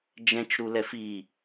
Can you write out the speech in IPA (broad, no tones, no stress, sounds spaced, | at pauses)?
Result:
d͡ʒ ɛ̃ t͡ʃ ɾ u l ɛ f i